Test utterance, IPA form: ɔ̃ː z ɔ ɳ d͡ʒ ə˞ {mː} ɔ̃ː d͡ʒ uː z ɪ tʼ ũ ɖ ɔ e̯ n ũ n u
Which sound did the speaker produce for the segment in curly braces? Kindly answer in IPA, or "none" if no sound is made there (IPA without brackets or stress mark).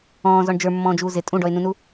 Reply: mː